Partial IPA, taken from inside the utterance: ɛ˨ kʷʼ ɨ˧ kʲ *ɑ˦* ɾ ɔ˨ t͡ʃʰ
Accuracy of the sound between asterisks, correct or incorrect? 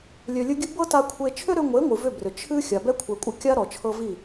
incorrect